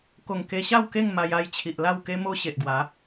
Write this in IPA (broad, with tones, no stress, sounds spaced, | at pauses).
k o˨˩ ŋ k e˧ ɕ a˥˧ w k e˥˧ ŋ m a˧ j a˧ j t͡ɕʰ i˨ ʔ l a˥˧ w k e˦ m o˦ ɕ e˨ ʔ ɡ w a˨˦